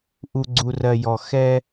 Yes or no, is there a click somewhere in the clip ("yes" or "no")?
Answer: yes